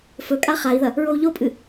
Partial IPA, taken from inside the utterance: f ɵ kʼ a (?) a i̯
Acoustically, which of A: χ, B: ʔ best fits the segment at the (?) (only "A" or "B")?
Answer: A